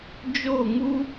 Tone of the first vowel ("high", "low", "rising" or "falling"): falling